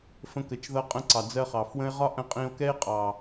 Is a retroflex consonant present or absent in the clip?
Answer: absent